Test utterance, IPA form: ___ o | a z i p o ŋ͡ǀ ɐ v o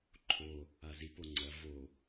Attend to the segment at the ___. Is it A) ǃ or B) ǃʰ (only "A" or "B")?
B